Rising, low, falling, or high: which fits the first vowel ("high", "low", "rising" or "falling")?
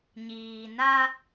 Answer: low